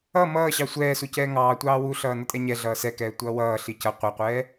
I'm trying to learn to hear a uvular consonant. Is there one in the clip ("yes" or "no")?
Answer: yes